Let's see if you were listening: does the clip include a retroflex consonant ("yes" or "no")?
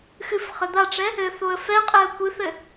yes